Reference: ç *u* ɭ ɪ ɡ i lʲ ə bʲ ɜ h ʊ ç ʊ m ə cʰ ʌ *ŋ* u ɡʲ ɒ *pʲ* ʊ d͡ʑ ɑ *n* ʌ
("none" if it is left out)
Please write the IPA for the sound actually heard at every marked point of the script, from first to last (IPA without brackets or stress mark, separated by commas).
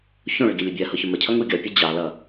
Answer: ũ, ŋ, pʲ, l